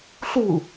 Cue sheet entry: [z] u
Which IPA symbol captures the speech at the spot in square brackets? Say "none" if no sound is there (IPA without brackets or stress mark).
ɬ